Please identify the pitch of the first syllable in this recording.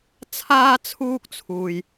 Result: high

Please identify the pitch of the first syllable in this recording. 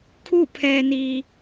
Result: falling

